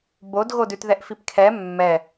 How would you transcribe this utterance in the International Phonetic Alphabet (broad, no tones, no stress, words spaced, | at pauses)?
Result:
bodɣodʉtðɛʔ fipkʰɛ mːɛ